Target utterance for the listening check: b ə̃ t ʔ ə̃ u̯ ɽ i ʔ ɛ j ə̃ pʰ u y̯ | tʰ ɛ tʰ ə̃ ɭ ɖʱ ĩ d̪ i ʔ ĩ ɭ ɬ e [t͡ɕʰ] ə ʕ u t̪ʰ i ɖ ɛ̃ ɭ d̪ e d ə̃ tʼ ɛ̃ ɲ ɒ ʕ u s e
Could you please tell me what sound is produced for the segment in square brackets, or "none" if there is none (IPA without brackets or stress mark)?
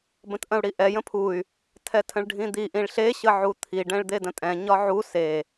ɕ